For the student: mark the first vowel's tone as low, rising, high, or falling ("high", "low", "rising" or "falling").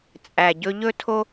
low